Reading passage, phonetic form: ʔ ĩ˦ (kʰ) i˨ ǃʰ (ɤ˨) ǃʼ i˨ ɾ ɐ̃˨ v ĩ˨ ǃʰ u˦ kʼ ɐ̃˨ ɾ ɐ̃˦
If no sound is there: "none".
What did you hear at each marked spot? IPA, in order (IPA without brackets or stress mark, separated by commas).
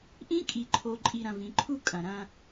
kʼ, o˨